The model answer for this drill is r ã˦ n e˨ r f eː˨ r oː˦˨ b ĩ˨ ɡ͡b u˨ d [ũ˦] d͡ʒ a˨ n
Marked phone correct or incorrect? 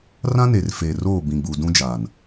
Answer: correct